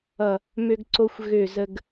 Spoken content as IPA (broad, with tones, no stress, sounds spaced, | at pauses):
ʌ˧˩ | m ø˧ ɡ ǀ o˧ xʷ ɣ ø˧˩ z ə˧ ɡ